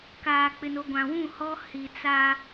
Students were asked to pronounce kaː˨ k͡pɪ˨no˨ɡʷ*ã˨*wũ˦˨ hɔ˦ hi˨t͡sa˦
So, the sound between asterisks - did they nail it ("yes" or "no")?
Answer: yes